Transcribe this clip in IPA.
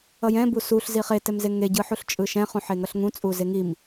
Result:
ʌ j ɛ̃ b u s u ɬ z i χ e t ɛ m z e ŋ e ɟ ɯ ħ u ɬ t͡ʃʼ ɯ ʃ ɛ̃ χ ũ ħ e ŋ ʌ ɬ ŋ ũ t͡sʼ u z e ŋ i m

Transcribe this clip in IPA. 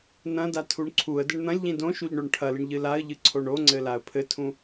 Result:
n ɐ̃ d a tʰ u ɳ ǀʰ u ə̯ d ɘ ɳ n̪ ɐ̃ lʲ ʎ ĩ d õ ʃ u ʎ ɳ o ɳ ʈʰ ɐ l ɨ ɳ ʎ ɨ l a ə̯ ʎ ɨ ǀʰ o ɳ o ŋ͡ǀ ɘ l a ə̯ pʰ ɘ tʰ ũ

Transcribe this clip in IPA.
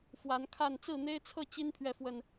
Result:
f w a˨˦ n kʰ a˥˨ n t͡s ɹ̩˥˨ n̪ e˦ ɪ̯ t͡sʰ ɤ˥˨ t͡ɕ i˦ n pʰ ɥ ɛ˨ f w ə˨˩ n

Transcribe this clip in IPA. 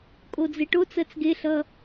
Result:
kʼ o d͡z e ʈ o t͡s ɜ t͡s ɡ e ɬ ʌ

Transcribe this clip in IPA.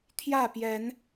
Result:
t̪ʰ j ä˥˨ p j ɛ˨˦ n

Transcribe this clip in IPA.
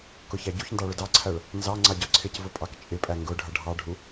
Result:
k ʊ ç æ ɟ u ç n d ɑ ɭ ʊ d ɑ ǀʰ æ ɭ | n z ɑ ŋ͡ǀ ɑ ɟ ɒ ǀʰ ɪ c v ʊ pʼ ɑ k t͡ʃʼ ɪ pʼ æ ŋ ɡ ʊ ɖʱ ʌ ɖʱ ɑ ɖʱ u

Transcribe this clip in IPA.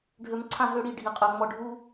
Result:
ɖʱ ø˧ m ǀʰ ã˥˧ ɦ ø˥˧ ɽ i˥˧ ɖʱ i˧ qʼ ø˧ ŋ͡m ɔ˧ ɖʱ u˥

